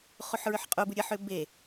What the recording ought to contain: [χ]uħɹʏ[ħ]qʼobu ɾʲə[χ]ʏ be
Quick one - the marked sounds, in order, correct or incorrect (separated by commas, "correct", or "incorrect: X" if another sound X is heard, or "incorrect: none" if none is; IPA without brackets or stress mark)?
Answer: correct, correct, incorrect: ħ